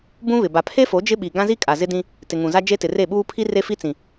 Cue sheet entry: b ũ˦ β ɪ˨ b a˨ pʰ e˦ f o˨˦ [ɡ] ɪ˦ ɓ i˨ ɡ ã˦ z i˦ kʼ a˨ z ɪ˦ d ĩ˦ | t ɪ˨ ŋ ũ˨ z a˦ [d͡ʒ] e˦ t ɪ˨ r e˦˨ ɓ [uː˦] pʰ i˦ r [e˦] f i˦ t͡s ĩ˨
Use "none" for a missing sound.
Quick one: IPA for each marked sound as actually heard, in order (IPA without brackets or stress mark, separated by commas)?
d͡ʒ, d͡ʒ, uː˦, e˦